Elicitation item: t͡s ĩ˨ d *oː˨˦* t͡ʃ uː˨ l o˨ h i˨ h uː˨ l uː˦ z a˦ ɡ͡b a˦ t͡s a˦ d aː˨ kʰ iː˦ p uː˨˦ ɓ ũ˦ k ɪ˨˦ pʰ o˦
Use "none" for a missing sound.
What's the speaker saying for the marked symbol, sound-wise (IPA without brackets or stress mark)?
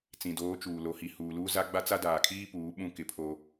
oː˨˦